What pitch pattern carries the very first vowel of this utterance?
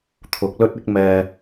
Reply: rising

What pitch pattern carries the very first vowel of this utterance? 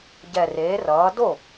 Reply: low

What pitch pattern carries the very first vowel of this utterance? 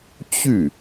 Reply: falling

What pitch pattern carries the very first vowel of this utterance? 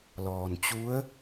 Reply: low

